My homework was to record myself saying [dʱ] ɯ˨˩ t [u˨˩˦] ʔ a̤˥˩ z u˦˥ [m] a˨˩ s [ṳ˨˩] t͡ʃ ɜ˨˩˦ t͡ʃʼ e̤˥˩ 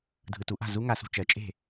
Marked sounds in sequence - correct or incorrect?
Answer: correct, correct, incorrect, incorrect

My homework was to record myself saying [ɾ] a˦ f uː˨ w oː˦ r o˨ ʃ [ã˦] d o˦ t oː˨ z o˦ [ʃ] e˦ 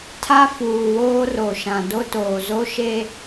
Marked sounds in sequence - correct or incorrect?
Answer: incorrect, incorrect, correct

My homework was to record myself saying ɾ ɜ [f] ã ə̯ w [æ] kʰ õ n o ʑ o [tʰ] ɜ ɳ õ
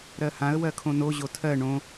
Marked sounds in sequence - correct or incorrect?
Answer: incorrect, incorrect, correct

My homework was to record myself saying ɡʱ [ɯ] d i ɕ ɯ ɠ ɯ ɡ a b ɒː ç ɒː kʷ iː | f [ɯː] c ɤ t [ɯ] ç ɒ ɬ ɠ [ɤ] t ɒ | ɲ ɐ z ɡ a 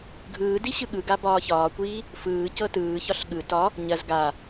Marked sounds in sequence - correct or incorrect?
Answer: incorrect, correct, incorrect, incorrect

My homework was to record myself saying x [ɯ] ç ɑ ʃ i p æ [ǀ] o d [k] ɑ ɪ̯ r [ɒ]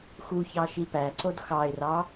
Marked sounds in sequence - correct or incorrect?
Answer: incorrect, correct, incorrect, incorrect

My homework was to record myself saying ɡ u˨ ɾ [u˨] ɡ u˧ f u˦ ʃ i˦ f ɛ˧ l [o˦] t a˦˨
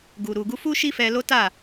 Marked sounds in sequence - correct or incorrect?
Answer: correct, correct

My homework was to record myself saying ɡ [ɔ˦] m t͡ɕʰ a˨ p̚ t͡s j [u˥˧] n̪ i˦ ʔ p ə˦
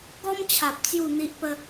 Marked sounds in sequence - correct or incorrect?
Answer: correct, correct

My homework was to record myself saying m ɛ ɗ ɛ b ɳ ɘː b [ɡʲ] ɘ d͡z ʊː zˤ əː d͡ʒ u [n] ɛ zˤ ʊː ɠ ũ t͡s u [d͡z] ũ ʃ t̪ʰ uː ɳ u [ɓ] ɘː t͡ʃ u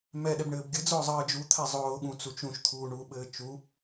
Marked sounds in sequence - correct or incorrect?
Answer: correct, incorrect, incorrect, correct

